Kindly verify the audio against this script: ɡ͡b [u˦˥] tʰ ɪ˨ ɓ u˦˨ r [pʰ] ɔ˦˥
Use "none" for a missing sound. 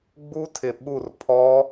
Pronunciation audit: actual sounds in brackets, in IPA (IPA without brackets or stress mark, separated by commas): u˦˥, pʰ